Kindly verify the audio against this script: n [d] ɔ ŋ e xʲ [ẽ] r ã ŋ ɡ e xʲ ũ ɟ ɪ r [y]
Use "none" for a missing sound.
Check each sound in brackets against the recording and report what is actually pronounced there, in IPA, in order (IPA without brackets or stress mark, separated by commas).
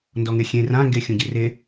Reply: d, ẽ, e